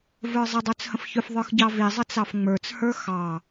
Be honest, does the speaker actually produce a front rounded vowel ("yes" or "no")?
yes